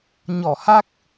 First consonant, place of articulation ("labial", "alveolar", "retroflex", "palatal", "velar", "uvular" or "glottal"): palatal